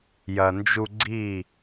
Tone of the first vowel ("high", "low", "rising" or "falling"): low